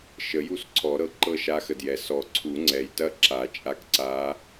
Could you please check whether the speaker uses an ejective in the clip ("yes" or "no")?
yes